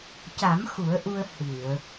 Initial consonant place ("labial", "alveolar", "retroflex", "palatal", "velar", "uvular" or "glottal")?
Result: palatal